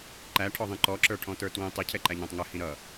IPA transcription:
ǃ æ ʈʰ ɔ ðˤ ĩ ǃ ɔ ǁ ə˞ ʈʰ ɔ̃ t ə˞ t w ĩ tˤ i cʰ ɛ ǃ æ ɲ ɔ̃ tˤ ŋ ə h ĩ ɾ ʌ

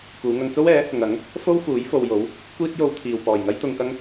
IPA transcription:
k uː˨˧ ŋ ɐ˧ ŋ t͡s o˥ w ɛː˨˥ | ŋ ɐ˨˥ ŋ | f o˥ w f uː˨˥ j f o˨ w j o˨˥ w | kʷ iː˥ t̚ j o˧ w t̪ʰ iː˨ w p ɔː˨˩ j ŋ ɐ˥ j t̪ ʊ˨ ŋ k ɐ˧ ŋ

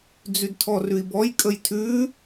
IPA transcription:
d͡z ʉ d tʰ ɔ r ʉ i̯ b ɔ j kʼ ə j tʰ ʉ

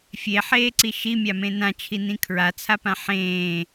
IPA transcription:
fʲ e ħ eː ǀ i ʃ i mʲ a m ẽ n ã t͡ʃʰ i n ĩ kʰ ɹ a t͡sʰ a p ã ħ ẽː

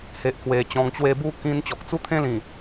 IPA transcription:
h e˨ ʔ k w e˨˩ t͡ɕ ɔ̃˨˩ ŋ t͡ɕ w e˧ b u˥˧ k ĩ˧ n t͡ɕ ɔ˨ k̚ t͡s u˦ t̪ʰ ẽ˦ l ĩ˨˩

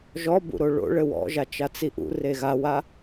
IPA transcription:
ʒ ɔ b ṵ ɾ o ɭ o̰ ɭ ɘ w ɔ̰ ʒ a t͡ʃ a t͡s i ʔ ṵ r e ɣ a w a

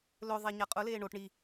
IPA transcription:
l ɵ ðˤ e ɲ a qʼ ʊ l eː ɳ o ʈ ɳ i

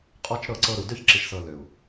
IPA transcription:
qʼ ɔ˧ t͡ʃ ɾ ɤ˦˨ ǀ ɤ˧ ɾ u˨ d ø˦ ç ǁ i˨ ʃ s ɤ˨ l ø˨ u̯

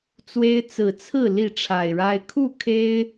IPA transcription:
t͡s w e˦ ɪ̯ t͡s ɹ̩˨˩ t͡sʰ ɹ̩˥˨ l i˥˨ ʈ͡ʂʰ a˨˩ ɪ̯ ɻ a˦ ɪ̯ kʰ u˥˨ kʰ e˦ ɪ̯

